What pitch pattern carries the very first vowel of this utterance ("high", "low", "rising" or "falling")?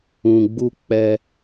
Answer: low